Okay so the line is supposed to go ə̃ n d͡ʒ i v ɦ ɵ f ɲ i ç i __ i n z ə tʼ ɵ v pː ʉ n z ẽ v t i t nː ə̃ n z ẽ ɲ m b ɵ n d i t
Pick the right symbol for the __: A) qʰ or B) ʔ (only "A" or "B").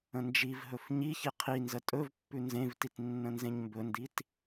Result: A